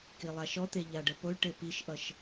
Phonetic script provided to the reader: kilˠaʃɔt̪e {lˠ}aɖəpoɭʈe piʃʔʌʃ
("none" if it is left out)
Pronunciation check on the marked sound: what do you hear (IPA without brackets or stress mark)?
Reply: ʎ